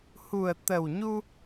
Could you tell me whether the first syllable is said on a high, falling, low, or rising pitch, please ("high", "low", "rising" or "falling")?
low